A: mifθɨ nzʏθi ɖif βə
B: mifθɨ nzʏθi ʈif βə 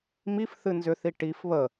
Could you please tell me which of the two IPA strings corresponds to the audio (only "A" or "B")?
B